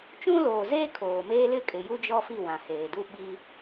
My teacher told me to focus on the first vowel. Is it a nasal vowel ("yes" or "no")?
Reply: yes